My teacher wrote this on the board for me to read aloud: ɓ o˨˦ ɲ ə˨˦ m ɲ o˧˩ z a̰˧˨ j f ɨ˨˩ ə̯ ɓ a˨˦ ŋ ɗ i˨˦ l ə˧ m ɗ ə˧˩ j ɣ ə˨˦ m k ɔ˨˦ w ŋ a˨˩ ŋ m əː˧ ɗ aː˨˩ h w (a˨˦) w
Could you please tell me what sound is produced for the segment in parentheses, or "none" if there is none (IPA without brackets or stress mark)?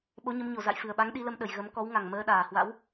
a̰˧˥